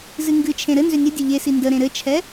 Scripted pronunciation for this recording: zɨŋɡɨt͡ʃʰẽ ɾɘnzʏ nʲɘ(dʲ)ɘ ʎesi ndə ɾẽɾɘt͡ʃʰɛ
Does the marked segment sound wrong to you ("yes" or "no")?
no